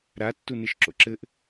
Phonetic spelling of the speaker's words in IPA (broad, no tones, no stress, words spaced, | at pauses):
ɾa tːuneʃǁo̰ǁɘʔ